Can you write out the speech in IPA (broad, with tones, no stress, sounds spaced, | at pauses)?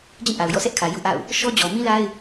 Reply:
d͡ʑ ĩ˦˨ ʔ a˨ ʊ̯ j ɔ̰˦˨ s ɛ˦ ʔ kʰ ä˨ j ṵ˦˨ ʔ a̰˦˨ ʊ̯ | ʃ ɔ˦ d͡ʑ ɔ˨ m ĩ˦ l a˦ ɪ̯